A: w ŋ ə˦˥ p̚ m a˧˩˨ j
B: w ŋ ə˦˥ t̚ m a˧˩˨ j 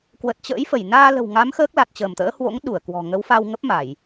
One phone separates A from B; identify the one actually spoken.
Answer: A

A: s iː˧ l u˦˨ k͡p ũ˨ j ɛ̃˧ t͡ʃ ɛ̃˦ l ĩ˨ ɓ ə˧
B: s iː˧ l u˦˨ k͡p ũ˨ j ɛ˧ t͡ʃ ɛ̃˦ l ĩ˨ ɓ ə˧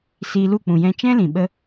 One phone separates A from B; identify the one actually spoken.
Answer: A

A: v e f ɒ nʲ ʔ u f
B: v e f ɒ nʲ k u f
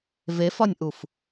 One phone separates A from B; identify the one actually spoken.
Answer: A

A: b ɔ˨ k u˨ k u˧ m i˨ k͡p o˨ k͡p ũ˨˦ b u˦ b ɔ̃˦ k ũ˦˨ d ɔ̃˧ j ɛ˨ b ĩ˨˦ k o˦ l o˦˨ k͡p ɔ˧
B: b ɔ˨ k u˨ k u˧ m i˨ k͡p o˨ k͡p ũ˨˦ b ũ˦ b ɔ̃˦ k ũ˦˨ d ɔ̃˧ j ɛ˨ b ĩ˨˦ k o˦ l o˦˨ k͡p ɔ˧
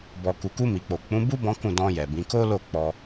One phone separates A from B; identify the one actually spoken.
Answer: A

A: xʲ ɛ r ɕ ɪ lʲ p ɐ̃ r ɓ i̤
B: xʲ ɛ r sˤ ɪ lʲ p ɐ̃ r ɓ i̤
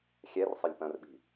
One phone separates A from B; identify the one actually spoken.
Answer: B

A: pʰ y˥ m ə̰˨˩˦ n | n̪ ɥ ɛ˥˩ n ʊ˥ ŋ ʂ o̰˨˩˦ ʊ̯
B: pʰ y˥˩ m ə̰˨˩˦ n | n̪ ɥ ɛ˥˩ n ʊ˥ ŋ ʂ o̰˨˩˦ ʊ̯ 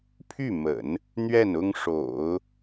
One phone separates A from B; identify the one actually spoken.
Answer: B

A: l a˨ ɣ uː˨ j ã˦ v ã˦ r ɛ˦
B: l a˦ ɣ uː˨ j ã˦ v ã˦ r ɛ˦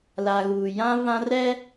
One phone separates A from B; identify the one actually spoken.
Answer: A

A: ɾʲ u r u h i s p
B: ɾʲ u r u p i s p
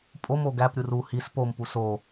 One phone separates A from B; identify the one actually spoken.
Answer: A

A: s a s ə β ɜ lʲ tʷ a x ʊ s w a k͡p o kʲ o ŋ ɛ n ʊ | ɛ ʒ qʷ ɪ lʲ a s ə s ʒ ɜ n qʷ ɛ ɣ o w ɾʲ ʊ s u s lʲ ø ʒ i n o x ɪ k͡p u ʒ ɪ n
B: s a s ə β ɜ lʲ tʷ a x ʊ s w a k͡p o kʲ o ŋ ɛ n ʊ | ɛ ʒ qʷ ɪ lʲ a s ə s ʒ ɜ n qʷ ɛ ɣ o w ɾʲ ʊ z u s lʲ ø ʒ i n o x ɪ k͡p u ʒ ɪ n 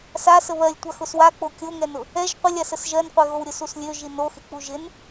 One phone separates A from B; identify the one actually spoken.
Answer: A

